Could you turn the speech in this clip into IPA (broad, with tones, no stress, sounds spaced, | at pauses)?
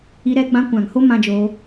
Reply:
i˧ ɾ ɛ˧ ɡ͡b ã˧ kʷ ã˨ ŋ h o˦ m ã˧ d͡ʒ oː˧